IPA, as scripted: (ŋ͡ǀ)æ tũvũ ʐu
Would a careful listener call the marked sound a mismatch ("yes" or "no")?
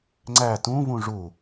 no